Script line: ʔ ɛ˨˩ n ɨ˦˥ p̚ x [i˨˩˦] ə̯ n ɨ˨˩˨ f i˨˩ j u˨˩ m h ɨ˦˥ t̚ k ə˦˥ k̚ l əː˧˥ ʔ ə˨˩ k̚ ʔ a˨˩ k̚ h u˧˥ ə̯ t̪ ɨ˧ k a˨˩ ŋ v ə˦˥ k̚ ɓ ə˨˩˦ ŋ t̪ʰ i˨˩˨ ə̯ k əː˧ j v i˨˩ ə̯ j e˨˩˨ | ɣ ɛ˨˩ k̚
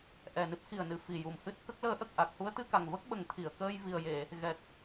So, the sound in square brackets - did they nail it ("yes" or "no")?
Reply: no